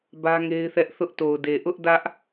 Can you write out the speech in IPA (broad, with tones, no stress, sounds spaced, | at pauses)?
b ä˦ ŋ e˦ ɪ̯ θ ɛ˦ ʔ θ ʊ˦ ʔ t o˨ ʊ̯ d e˨ ʔ ʊ˦ ʔ d ä˦ ʔ